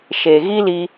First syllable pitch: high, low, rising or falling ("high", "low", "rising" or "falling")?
low